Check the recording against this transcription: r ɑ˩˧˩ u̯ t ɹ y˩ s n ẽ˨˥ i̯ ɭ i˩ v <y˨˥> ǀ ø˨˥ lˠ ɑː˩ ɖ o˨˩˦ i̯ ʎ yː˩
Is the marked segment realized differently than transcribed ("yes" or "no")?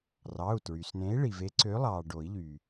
yes